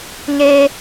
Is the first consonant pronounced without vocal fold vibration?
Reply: no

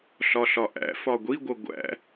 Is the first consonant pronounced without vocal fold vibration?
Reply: yes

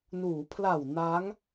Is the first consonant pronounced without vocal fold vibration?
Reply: no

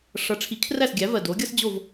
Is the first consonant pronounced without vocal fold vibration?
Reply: yes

